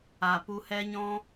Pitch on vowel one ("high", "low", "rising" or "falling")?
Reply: low